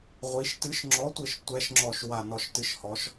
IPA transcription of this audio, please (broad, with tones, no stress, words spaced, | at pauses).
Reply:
ʁʷi˩˧ʃtɨ˨˥ʃŋ͡ǁɔ˨˥tʷɘ˧˩ʃ tʷɛ˨˥ʃŋ͡ǁɔ˧˩ʃwa˧˩ nɔ˧˩ʃtɨ˨˥ʃhɔ˩˧ʃ